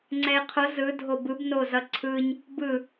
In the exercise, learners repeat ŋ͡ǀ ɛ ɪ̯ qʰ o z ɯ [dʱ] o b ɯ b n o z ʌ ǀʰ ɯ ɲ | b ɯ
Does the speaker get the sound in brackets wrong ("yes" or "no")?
no